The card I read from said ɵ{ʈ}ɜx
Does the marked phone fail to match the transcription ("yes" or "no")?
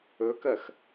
yes